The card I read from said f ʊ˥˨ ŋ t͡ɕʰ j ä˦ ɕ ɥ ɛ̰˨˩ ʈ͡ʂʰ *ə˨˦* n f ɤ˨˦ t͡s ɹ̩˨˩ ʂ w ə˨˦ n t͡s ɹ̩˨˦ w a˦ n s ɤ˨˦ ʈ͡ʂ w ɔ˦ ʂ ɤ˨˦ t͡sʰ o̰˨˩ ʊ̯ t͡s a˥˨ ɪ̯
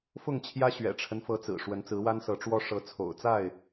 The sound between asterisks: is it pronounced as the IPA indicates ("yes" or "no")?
no